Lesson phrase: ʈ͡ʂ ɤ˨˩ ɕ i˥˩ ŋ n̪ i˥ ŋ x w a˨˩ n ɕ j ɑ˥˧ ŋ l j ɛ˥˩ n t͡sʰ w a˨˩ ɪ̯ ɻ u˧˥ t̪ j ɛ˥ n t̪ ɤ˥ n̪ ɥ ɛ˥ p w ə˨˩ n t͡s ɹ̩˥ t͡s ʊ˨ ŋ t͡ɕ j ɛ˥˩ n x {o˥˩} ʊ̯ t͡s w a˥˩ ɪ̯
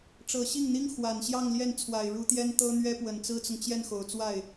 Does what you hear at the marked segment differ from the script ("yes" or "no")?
yes